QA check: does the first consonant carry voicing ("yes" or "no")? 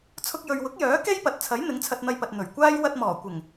no